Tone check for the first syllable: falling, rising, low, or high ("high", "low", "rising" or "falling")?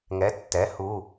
rising